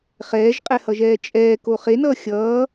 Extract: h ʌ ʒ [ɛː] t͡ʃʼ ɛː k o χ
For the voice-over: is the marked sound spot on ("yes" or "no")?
yes